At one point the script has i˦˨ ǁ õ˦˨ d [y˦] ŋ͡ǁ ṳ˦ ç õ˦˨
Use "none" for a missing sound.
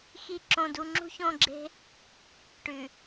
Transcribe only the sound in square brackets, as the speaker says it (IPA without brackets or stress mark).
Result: u˦